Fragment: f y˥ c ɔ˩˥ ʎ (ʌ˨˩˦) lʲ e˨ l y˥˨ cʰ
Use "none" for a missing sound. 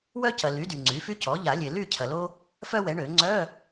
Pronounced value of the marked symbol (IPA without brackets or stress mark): a˨˩˦